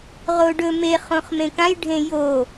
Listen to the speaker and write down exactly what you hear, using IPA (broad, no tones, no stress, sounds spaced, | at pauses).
ʁ o ɖ ɵ m e χ õ χ m ẽ k ã j ɖʱ ẽ j o